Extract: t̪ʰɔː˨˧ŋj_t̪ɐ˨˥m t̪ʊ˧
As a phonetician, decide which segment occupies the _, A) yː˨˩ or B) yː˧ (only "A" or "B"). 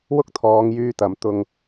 B